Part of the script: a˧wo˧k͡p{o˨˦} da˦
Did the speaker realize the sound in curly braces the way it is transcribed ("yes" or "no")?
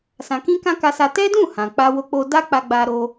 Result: no